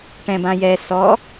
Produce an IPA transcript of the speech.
ʈ ɛ̃ b ã j ɛ s ɔ

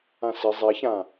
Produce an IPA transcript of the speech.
ã s ɪ zˤ e ç ã

